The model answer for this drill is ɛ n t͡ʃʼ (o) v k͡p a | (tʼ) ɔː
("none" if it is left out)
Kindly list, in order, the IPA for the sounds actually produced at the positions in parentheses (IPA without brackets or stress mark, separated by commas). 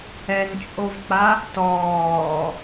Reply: o, t